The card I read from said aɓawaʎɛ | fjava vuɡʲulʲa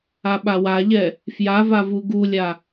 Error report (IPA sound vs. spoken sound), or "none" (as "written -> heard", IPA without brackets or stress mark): ɡʲ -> ɡ